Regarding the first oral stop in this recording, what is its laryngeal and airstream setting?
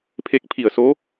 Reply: aspirated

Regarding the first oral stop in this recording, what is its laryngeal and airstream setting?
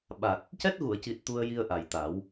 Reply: implosive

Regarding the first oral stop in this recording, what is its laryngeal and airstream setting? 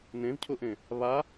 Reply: aspirated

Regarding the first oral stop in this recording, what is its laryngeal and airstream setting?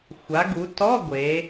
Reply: plain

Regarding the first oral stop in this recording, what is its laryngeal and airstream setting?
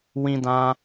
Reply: plain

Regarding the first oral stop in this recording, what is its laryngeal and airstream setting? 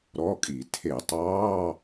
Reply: ejective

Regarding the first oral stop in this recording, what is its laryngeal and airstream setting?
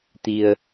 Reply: plain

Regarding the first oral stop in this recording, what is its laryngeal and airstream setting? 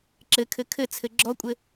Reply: click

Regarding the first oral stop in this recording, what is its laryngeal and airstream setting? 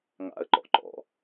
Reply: click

